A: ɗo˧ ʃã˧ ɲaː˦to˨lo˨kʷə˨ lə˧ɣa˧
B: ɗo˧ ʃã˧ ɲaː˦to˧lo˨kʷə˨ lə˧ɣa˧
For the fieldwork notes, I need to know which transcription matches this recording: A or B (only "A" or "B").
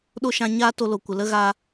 B